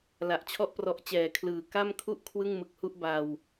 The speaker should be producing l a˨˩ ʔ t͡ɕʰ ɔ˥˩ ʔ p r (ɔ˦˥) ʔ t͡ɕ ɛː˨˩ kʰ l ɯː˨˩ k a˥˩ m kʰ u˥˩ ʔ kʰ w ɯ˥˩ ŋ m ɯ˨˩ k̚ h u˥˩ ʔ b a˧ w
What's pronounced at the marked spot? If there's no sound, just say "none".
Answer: ɔ˦˥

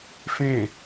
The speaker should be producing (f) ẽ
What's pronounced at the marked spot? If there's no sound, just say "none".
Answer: f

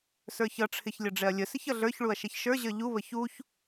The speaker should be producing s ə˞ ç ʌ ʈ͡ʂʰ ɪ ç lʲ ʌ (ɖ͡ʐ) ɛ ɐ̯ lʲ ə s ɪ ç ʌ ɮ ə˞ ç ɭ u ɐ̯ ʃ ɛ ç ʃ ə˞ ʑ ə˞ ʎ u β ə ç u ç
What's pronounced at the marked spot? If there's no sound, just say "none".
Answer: ɖ͡ʐ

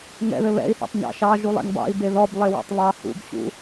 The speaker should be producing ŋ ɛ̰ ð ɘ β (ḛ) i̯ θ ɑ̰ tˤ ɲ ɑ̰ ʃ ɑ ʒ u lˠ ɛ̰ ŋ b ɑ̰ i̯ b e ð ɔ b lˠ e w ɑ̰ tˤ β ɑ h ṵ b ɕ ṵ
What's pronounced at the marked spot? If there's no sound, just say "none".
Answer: ɛ̰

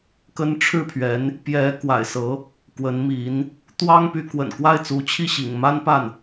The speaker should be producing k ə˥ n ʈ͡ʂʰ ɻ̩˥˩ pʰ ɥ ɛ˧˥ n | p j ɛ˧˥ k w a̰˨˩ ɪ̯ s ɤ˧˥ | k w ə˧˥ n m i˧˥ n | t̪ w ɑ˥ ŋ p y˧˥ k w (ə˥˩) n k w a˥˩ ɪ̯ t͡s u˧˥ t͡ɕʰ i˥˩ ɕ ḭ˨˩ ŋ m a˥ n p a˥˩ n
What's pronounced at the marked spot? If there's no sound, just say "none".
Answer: ə̰˨˩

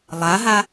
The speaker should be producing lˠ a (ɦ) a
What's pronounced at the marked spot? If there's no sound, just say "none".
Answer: ɦ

